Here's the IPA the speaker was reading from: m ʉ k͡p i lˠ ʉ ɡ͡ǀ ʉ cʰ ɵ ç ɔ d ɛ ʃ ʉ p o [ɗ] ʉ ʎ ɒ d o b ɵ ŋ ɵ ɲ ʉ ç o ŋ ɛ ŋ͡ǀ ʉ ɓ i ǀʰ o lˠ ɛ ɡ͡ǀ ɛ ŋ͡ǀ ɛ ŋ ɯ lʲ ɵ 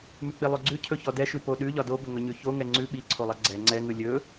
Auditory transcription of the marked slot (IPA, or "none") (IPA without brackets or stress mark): ɗ